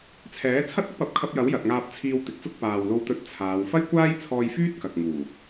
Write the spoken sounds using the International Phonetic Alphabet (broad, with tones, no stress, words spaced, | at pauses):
t͡sʰɛː˨˥t͡sʰɐ˥t̚ ʊ˥k̚pɐ˨˥p̚kʰɐ˧p̚jɐ˨˥w jɐ˨t̚ŋaː˧p̚t͡sʰiː˧w t̪ɪ˨˥k̚t͡sʊ˥k̚ paː˨wlo˧wt̪ɵ˧t̚t͡sʰaː˨˧w fɐ˥jkʷaː˥jt͡sʰɔː˧jfyː˥t̚ kɐ˨k̚ ŋuː˨˩